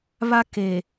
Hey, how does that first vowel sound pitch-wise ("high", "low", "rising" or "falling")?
high